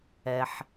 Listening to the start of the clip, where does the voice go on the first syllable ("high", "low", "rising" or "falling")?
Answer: low